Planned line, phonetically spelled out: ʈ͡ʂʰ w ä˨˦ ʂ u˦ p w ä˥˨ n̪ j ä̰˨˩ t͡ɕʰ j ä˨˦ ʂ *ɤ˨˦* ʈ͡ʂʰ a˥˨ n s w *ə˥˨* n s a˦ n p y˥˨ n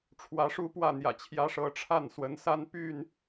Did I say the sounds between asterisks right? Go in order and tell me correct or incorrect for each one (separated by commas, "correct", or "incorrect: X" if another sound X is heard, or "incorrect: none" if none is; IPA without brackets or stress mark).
correct, incorrect: ə˨˦